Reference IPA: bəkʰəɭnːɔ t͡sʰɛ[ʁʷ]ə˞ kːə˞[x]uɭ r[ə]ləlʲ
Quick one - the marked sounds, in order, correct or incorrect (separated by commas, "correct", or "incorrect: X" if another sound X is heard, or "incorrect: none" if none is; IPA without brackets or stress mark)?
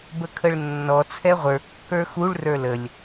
correct, correct, incorrect: ə˞